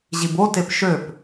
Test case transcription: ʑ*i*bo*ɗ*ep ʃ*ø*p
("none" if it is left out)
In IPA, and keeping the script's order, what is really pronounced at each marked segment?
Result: i, t, ø

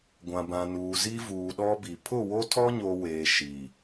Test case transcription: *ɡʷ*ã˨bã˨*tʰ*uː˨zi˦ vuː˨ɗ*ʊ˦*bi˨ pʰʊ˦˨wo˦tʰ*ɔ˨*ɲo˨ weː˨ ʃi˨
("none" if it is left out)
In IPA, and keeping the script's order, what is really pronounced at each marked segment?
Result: ɡʷ, n, ɔ˦, ɔ˦

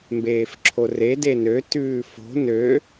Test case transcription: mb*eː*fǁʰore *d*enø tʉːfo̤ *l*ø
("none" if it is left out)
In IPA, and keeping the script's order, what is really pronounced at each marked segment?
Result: eː, d, n

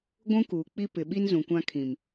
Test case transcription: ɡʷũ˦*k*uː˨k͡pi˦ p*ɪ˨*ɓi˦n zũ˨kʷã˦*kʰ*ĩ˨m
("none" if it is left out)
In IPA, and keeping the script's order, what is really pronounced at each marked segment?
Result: k, ɪ˨, kʰ

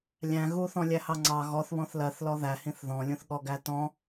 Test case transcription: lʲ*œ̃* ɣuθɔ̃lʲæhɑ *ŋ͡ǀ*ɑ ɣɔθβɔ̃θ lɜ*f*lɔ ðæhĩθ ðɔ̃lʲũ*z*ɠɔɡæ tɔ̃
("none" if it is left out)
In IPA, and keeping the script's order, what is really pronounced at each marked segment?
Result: æ̃, ŋ͡ǀ, θ, θ

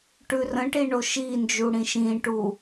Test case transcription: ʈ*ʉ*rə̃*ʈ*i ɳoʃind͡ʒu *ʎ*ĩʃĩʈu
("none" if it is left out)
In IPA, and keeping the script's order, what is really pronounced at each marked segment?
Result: ʉ, ʈ, ɽ

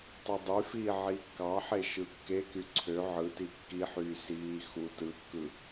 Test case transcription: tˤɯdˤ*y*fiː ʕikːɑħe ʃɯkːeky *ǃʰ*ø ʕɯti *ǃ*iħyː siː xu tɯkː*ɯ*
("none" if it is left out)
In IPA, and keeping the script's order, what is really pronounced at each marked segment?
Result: y, ǀʰ, kː, ɯ

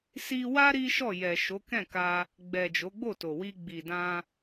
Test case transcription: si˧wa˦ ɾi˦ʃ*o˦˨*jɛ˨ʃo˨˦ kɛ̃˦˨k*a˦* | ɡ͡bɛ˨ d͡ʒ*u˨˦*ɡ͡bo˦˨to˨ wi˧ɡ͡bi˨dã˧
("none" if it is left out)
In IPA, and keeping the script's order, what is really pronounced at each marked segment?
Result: ɔ˦˨, a˧, o˨˦

